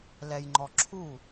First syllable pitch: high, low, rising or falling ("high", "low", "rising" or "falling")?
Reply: low